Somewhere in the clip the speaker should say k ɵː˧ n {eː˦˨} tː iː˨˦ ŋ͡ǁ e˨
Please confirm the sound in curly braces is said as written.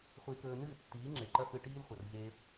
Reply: no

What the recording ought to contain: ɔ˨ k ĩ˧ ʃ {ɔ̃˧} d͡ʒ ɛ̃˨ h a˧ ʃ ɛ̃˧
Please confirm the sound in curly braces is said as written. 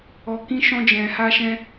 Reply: yes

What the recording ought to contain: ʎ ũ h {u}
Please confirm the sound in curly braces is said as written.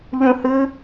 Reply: no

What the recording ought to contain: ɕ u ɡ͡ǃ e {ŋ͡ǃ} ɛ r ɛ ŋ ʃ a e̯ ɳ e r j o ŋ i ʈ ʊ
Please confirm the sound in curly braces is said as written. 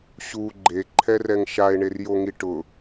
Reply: no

